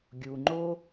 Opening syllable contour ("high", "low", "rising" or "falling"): low